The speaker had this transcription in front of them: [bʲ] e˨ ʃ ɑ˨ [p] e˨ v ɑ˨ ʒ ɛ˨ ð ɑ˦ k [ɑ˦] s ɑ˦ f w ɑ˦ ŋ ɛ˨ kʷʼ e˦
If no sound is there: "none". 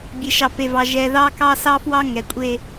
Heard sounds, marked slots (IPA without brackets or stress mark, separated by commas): bʲ, p, ɑ˦